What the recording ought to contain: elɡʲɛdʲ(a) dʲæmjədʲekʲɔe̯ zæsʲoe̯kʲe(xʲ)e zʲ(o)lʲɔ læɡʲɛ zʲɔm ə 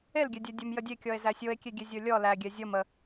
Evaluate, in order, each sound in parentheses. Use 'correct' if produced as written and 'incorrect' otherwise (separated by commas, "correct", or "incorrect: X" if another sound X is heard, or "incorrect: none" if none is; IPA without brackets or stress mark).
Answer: incorrect: æ, incorrect: ɡʲ, correct